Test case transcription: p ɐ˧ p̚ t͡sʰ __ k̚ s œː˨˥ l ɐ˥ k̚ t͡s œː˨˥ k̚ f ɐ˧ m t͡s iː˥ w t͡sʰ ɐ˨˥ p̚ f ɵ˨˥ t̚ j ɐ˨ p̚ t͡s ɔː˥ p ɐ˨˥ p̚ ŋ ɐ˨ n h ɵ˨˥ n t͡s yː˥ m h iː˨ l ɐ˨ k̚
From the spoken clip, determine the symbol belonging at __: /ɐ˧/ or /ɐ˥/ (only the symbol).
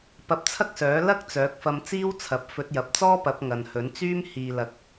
ɐ˥